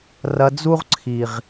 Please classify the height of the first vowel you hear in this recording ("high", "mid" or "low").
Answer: low